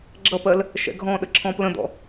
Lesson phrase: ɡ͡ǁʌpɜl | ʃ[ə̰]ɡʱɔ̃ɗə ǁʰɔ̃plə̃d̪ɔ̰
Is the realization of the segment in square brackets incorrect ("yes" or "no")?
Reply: yes